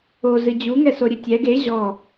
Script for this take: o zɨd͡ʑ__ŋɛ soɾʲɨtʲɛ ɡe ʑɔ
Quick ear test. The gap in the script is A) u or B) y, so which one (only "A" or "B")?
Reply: A